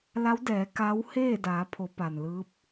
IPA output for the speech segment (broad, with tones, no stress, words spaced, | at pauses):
la˧˥wdɛː˩˧ ka˧˥w heː˥˨daː˩˧pʰo˩˧ pa˩nlɯː˧˥p̚